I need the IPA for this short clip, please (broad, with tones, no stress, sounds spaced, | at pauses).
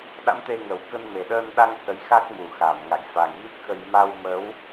ɗ a̰˧˥ m t̪ e˧ ŋ ə˨˩ w k ə˧ n m e˨˩ ɗ əː˧ n ɗ a˧ ŋ s ə˨˦ j x a˦˥ k̚ m u˨˩ x aː˧˩ m ŋ a̰˧˨ j f a˨˩ ŋ ɣ i˦˥ k̚ x ə˧ j m a˧ w m ə˨˦ w